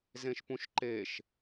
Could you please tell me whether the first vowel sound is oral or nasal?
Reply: nasal